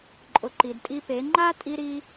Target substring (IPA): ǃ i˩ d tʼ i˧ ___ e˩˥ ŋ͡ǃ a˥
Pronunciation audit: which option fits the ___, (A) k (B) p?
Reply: B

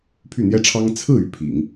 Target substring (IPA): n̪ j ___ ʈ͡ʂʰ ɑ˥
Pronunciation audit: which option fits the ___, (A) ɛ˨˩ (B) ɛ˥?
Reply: B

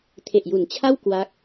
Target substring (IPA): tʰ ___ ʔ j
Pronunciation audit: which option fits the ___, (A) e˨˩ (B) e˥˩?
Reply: A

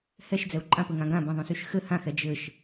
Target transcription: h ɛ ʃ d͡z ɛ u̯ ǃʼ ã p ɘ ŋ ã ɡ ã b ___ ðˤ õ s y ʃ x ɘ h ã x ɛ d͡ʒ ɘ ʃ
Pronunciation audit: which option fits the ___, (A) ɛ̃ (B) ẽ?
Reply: A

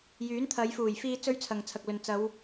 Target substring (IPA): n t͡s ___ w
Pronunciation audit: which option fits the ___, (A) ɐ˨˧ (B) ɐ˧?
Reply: A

